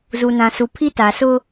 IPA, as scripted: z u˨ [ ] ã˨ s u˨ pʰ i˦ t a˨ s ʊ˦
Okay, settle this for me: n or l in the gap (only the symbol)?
n